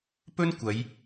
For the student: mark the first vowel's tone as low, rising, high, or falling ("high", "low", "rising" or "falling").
high